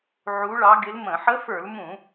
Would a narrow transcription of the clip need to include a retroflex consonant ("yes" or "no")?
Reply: yes